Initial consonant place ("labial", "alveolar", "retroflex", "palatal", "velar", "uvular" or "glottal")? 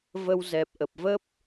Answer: labial